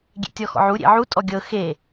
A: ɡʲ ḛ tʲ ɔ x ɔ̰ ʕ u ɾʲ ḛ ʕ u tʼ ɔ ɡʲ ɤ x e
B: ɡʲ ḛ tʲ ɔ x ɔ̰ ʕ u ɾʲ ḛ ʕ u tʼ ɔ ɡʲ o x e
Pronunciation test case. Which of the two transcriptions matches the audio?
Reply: A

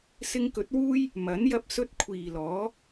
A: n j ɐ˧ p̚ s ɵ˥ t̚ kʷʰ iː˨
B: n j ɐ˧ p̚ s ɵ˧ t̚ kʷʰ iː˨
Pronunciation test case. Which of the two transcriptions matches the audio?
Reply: B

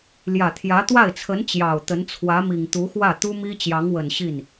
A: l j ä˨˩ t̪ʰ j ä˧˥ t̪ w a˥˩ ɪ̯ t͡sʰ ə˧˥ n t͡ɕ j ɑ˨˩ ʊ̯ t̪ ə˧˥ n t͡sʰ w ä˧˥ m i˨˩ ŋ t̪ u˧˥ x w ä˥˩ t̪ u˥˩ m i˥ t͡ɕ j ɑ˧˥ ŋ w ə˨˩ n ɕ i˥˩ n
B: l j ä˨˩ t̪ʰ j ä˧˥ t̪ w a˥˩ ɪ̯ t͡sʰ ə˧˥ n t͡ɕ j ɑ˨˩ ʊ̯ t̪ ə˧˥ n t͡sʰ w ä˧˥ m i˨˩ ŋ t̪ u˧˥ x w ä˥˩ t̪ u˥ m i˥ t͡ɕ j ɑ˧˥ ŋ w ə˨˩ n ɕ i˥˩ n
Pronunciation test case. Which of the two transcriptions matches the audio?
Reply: B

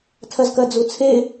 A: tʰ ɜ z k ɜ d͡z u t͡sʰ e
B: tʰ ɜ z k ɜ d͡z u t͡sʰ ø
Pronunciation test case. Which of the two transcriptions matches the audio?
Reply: A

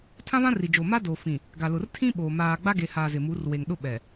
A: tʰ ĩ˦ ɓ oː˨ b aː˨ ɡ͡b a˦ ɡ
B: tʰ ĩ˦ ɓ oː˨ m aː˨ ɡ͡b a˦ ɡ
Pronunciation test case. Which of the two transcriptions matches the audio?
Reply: B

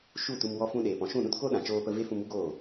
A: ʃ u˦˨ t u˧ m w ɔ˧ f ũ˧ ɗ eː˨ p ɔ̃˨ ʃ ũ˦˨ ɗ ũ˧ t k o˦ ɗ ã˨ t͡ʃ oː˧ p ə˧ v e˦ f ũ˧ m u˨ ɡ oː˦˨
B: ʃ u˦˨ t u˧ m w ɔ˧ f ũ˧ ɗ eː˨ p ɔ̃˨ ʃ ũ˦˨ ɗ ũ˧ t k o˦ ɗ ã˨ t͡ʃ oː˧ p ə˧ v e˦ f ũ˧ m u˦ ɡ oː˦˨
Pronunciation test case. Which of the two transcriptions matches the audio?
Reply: B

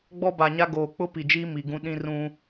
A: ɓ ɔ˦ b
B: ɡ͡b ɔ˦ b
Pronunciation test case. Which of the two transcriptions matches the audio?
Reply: B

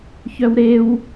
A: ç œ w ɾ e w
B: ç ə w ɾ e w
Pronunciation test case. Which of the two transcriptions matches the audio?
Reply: A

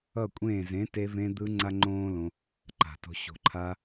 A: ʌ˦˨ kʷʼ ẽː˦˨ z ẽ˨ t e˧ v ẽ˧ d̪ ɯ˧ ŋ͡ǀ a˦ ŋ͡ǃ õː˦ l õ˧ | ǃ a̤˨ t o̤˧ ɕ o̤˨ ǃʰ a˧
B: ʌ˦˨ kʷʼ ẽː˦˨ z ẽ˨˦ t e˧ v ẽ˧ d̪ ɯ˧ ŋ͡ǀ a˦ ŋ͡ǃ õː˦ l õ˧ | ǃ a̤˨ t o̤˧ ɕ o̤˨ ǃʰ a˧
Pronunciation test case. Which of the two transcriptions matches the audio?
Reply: B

